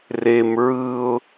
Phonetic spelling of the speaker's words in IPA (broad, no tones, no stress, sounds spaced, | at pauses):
r e m ɹ ɯ ʊ̯